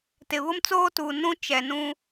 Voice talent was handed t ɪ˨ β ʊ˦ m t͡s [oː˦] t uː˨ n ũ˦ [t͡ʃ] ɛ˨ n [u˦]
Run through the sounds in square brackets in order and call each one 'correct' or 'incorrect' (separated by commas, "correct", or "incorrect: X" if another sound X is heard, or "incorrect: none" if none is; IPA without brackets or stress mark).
correct, correct, incorrect: ũ˦